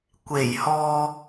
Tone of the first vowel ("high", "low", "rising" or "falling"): low